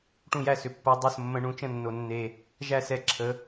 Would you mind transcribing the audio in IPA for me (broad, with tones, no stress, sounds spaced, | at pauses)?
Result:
ʈ ũ˥˩ j æ˥˩ s ʏ˨˩ pː o˨˦ dˤ o˥˩ s mː ə̃˨˦ ɳ ũ˨˦ t͡ʃ ə̃˥˩ nː o˨˩ nː e˨˩ | ʒ æ˥˩ s ɛ˥˩ ǁʰ ə˨˦